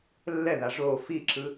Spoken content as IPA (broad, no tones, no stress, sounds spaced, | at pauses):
lː ɛ ð a ʐ o f i ǁ ɯ